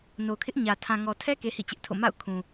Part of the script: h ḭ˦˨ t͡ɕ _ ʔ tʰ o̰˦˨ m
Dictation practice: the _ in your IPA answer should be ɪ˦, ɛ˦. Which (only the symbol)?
ɪ˦